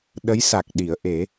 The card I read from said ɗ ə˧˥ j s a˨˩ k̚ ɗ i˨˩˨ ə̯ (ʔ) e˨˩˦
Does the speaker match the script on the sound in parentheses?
yes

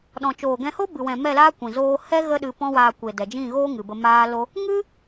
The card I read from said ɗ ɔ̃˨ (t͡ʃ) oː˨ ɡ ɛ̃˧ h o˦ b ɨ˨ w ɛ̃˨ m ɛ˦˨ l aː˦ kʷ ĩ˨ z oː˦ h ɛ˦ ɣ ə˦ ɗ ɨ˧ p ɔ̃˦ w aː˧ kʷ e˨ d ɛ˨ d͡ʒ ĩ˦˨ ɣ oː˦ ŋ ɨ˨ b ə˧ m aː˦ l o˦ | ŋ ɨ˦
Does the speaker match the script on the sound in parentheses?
yes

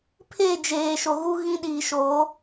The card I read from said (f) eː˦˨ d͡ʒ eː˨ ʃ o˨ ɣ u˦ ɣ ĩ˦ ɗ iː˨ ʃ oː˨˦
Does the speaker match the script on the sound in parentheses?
no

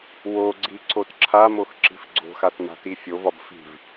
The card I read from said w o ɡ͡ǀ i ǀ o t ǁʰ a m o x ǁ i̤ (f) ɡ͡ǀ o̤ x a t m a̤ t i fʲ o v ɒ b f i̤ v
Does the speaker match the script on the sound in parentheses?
yes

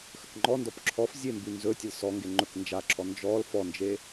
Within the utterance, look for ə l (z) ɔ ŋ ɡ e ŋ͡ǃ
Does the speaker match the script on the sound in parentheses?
no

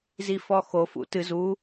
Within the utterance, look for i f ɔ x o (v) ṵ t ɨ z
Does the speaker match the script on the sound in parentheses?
no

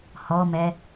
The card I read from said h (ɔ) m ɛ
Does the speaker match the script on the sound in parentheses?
yes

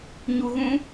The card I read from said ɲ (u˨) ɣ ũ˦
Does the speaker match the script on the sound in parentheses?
no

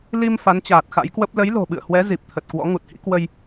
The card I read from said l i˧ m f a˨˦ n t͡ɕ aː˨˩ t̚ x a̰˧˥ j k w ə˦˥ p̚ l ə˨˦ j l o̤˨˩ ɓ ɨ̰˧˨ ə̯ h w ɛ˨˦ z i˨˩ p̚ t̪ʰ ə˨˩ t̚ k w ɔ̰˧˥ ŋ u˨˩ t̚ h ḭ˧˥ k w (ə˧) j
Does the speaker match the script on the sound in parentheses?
yes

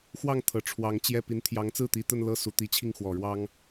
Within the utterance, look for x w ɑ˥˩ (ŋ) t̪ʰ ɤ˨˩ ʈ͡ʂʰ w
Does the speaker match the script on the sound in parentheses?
yes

